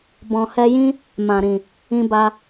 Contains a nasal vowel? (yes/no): yes